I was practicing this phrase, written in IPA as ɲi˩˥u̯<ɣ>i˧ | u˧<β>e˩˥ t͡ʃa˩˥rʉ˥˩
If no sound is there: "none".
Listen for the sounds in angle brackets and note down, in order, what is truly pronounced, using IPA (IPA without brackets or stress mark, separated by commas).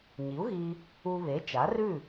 ɣ, β